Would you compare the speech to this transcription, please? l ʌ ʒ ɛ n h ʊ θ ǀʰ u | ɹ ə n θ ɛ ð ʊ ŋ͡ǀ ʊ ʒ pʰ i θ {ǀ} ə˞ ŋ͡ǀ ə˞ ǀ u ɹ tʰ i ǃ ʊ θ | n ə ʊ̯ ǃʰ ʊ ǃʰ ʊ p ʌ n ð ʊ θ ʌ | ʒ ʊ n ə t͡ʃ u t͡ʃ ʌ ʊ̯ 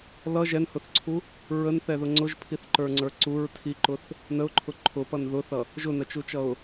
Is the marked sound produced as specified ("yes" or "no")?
no